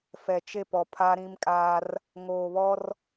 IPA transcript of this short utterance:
fɛ˨t͡ʃe˦˨pɔ˨ pʰaː˦ɾĩ˦mkʼaː˦r | ŋoː˨βɔ˦r

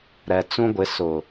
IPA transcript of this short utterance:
ɾɛ˨ t͡sũ˦ɡʷɪ˨˦ sʊ˨

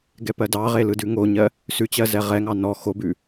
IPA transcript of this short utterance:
ɡɛpɜdɑʁe lɯdʉŋoɲɜ | sʉt͡ɕɜ zɛʁɛŋɑ nɔ xobʉ

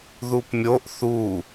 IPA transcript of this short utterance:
ðupmʲoʔ θu

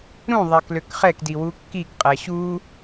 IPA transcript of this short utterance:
ɾũ ðˤækløkχɛkdi wukːikqʼæ ɕu

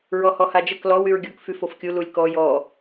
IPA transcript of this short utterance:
ɹɔhɔhad͡ʒək lɔw yɹɡʲok fyfofkʲu lulʲkɔ jɔ

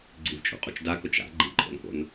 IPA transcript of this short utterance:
ɡ͡ǀivt͡ʃʼṵqʼut͡ʃ dakʊt͡ʃ a̰ ɡ͡ǃiǃʼo̰nko̰n

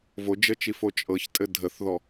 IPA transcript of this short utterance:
vod͡ʒət͡ʃifo t͡ʃʼɤçtʼɘ dʱəθðɔ

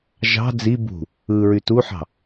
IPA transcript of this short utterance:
ʒɑ̤ d͡zi bṳ | ɯɹy tuħɑ̤

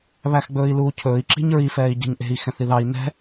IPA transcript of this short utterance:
βæxɡ͡bɵːi̯luːcʰɵːi̯ ǁi̤ɲɹi fɛːi̯ɟɛ̤ɲʔe̤i̯ xɛ̃θiðɑi̯ nɛ̤

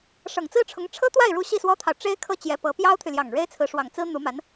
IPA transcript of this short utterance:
ʂɤ˨˩ŋt͡sɹ̩˥ʈ͡ʂʰʊ˧˥ŋ ʈ͡ʂʰɤ˥t̪wa˥˩ɪ̯ɻu˧˥ ɕi˥˩swɔ˥t̪ʰɑ˨ʊ̯ ʈ͡ʂe˥ɪ̯kʰɤ˥˩ t͡ɕjɛ˧˥pɤ˧˥ pjɑ˥ʊ̯t̪ʰy˨ljɑ˨˩ŋ ɻe˥ɪ̯t͡sʰɹ̩˧˥ʂwɑ˨˩ŋ t͡sɹ̩˥n̪u˧˥ma˧˥n

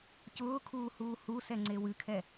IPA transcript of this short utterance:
cʊːkʰuː huːhusɛ ŋ͡ǀewɨkʰɛ

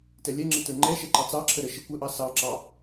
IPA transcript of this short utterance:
tɛlʲɛŋ͡ǁɪ tə˞ŋ͡ǃɛʃɛ ǃɑt͡sɑǁʰə ɾəʃɪ kʷəʔɑ sɑǁɑ

